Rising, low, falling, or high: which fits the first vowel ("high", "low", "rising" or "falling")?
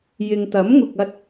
low